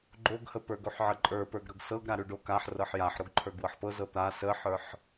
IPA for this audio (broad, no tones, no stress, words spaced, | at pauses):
ɡ͡ǃoɡhə pə˞ɡoħʕəǃʼə˞ pə˞ɡɾɤɡsɤɡ ɾaɾʉɖokaħ rɤħjaħɾoɡ ǃʰə˞ɡwɤħpɤ zɤt̪a səħə˞ħ